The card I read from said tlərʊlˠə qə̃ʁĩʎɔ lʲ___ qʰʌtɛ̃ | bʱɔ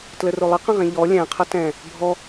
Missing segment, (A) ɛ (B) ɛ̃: B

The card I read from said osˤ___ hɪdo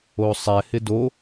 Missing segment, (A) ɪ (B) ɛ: B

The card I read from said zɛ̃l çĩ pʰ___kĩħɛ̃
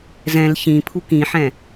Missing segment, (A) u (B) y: A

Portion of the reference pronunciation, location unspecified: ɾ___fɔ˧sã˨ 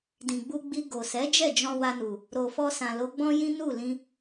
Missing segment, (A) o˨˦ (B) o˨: B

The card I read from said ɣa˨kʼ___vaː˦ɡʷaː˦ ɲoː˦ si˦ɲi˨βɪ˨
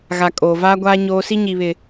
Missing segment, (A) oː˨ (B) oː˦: A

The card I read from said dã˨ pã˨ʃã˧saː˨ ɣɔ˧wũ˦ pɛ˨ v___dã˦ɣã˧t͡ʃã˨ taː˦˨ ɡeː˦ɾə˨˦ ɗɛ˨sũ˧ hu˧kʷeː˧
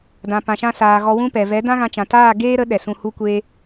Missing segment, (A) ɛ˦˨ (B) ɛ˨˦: B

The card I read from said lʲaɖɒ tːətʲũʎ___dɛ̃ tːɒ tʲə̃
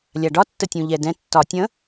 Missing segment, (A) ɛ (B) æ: A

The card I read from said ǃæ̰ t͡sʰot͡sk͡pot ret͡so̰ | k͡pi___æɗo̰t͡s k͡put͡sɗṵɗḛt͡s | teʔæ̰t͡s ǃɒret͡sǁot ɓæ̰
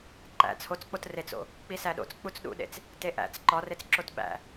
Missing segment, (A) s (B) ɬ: A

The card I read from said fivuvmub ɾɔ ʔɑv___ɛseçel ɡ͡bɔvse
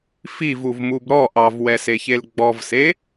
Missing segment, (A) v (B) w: B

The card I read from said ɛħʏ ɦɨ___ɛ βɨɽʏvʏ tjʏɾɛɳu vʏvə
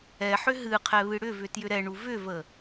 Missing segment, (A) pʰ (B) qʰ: B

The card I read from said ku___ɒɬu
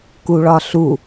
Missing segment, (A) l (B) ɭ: B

